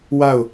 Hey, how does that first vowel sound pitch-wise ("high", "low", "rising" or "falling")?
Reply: falling